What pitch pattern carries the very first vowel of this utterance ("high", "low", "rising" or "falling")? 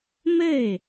falling